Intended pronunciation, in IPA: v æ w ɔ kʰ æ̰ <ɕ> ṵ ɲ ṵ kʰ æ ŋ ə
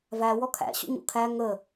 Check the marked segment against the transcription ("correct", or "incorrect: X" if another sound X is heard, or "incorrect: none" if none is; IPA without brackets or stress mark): correct